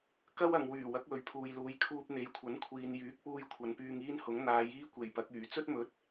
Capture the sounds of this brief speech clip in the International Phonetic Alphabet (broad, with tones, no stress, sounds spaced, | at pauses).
k ɐ˥ w ɐ˨ ŋ w yː˨˩ w ɐ˨˥ k̚ w ɵ˨ ɥ pʰ uː˨ j l uː˨˧ j kʰ uː˧ p̚ n̪ e˨ j kʷʰ ɐ˨˥ n kʷʰ iː˨ n j yː˨˥ k̚ p uː˧ j kʷʰ ɐ˨˧ n p yː˧ ŋ iː˥ n h ʊ˨˥ ŋ n̪ aː˨˧ j iː˥ kʷ e˨˩ j p ɐ˨˥ k̚ yː˨˩ t͡s ɵ˥ t̚ m ɵ˨˥ t̚